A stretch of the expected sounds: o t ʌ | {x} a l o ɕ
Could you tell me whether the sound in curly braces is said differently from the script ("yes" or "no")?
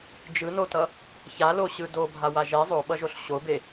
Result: yes